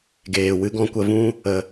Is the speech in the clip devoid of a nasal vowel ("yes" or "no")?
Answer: no